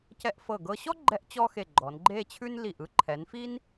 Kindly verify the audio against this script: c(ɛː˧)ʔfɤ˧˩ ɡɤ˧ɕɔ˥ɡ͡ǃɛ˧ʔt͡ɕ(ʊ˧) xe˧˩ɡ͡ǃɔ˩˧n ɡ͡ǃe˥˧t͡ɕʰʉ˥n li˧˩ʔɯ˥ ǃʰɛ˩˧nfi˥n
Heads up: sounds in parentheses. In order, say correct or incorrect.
incorrect: ɛ˧, incorrect: ɔ˧

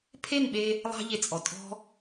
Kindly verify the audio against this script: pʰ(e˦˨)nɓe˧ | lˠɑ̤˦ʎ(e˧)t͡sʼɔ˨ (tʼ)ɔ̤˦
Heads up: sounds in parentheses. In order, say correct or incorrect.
correct, correct, correct

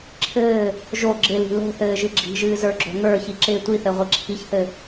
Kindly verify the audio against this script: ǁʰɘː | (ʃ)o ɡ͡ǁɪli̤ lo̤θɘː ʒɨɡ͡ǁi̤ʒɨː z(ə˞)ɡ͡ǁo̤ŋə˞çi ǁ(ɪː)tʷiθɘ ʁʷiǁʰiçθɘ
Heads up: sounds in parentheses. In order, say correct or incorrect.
incorrect: ʒ, correct, correct

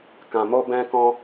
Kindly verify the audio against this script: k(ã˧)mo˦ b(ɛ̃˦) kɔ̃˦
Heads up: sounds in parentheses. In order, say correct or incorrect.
correct, correct

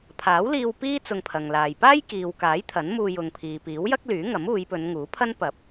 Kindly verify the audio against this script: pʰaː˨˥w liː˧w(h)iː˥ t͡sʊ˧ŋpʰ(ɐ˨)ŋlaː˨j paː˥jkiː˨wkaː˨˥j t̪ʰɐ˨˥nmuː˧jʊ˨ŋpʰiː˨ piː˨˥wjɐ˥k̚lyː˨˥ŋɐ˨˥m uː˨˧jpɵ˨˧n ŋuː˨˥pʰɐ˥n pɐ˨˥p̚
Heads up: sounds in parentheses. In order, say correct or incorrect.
incorrect: p, correct

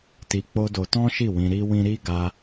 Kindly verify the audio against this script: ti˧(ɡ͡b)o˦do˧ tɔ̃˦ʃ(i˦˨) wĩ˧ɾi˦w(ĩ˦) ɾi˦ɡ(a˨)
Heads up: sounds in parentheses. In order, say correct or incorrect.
incorrect: k͡p, correct, correct, incorrect: a˧

